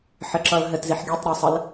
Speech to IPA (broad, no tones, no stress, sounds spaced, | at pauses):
ħ ɘ ǁ ʌ l ɦ ɘ t z i ħ ɡʲ ɒ tˤ ɾ ɛ sˤ ə l